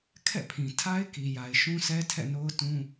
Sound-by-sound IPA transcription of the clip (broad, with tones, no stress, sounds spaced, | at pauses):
kʰ ɛ̰˦˨ pʰ ĩ˨ tʰ a˦ ɪ̯ k i˨ j a˨ ɪ̯ ʃ ũ˦ sʰ ɛ˦ tʰ ɛ̰˦˨ n o˦ ʊ̯ t ũ˦